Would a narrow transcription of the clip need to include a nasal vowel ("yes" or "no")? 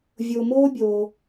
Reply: no